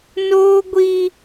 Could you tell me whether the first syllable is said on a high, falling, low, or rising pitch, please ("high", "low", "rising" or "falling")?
high